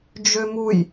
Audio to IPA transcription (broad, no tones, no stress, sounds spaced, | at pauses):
d͡ʒ ø m u j